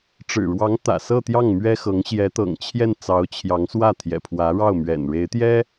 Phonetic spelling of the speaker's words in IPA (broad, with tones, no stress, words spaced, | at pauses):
ʈ͡ʂɻ̩˨˩ɻwɑ˧˥ŋ t̪ä̰˨˩sɤ˥˧t̪jɑ˥˩ŋ mɥɛ˥xɤ˧˥ŋ ɕjɛ˧˥t̪ɤ̰˨˩ŋt͡ɕʰjɛ˥˩n t͡sɑ˧˥ʊ̯t͡ɕʰjɑ˧˥ŋswä˥˩ t̪ʰjɛ̰˨˩pʰwä˧˥ɻɑ˥˩ʊ̯ mɥɛ̰˨˩nɻe˧˥ɪ̯t̪jɛ˥